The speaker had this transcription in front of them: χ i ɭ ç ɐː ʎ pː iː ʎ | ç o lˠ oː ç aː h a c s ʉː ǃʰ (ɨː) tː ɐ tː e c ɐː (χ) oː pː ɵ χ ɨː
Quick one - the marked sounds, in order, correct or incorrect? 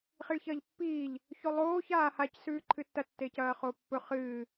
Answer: incorrect: ɨ, correct

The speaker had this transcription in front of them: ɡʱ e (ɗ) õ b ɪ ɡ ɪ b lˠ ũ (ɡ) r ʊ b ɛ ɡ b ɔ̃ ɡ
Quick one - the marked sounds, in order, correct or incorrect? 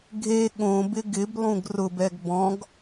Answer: incorrect: ɠ, correct

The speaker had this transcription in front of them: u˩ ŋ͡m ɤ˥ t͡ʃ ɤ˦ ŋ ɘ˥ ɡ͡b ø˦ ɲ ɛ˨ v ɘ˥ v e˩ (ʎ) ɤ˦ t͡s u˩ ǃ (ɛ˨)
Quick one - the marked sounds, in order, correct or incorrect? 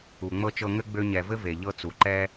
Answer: correct, incorrect: ɛ˥

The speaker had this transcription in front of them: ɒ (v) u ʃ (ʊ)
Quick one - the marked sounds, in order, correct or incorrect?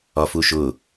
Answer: incorrect: f, correct

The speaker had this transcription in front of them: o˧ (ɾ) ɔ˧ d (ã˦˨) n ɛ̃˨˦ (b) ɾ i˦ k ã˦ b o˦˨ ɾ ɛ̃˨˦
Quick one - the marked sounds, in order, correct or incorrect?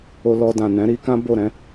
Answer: incorrect: l, incorrect: ã˨, incorrect: none

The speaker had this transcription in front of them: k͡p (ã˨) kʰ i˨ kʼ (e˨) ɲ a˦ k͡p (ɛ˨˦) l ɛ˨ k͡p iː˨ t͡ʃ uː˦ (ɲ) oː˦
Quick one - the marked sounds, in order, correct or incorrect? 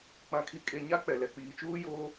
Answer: correct, correct, incorrect: ɛ˨, incorrect: j

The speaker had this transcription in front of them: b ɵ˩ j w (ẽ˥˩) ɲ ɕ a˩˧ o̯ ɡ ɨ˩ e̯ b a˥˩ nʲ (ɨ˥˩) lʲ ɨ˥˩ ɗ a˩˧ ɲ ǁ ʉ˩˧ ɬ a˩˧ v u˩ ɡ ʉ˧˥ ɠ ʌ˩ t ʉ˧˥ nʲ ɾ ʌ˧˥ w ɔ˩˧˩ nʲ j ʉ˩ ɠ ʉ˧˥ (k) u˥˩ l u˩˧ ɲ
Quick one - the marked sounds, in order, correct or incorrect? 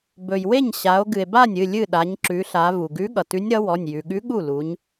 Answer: incorrect: e˥˩, incorrect: ɨ˩˧˩, incorrect: ɠ

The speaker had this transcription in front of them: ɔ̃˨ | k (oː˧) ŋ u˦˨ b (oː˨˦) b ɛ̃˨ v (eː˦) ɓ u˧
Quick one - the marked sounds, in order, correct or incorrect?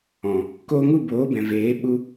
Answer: correct, correct, incorrect: eː˨˦

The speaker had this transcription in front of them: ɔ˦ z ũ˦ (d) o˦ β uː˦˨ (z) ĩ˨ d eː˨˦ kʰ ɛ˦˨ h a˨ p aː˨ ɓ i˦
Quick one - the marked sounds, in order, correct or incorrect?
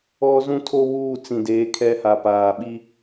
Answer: incorrect: tʰ, incorrect: t͡s

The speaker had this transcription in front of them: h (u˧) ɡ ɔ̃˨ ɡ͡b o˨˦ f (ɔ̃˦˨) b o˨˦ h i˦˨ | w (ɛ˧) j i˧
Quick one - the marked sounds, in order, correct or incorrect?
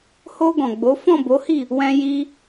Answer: incorrect: o˧, correct, incorrect: ɛ̃˧

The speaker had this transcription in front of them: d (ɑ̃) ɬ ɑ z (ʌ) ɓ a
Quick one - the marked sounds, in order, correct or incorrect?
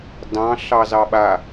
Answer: correct, incorrect: ɑ

